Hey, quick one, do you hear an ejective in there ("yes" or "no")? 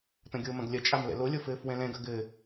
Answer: yes